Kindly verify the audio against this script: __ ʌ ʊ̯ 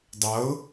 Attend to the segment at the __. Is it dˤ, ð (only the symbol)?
dˤ